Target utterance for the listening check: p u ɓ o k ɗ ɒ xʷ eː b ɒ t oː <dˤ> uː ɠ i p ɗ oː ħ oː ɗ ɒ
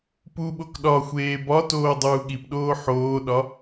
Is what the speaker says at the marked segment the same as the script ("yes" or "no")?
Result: yes